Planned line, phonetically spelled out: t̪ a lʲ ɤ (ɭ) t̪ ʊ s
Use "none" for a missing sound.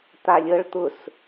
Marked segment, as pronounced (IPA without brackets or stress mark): ɭ